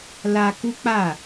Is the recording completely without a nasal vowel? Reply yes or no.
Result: yes